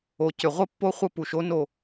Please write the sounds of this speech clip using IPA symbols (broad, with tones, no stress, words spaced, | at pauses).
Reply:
o˨ cʏ˨ʁʷə˦pːo˦ χʷə˦pu˨ʃ o˦ no˦